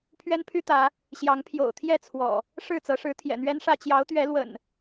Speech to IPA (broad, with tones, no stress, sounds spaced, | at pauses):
pʰ ɥ ɛ˦ n pʰ y˦ t̪ ä˨˦ | ɕ j ɑ˨˦ ŋ pʰ j o̰˨˩ ʊ̯ t̪ʰ j ɛ˥˨ t͡sʰ w ɔ̰˨˩ | ʂ ɻ̩˥˨ t͡s ɤ˨˦ ʂ ɻ̩˨˦ t̪ʰ j ɛ̰˨˩ n̪ ɥ ɛ˦ n ʂ ä˥˨ t͡ɕ j ɑ˨˦ ʊ̯ t̪ ɥ ɛ˨˦ l w ə̰˨˩ n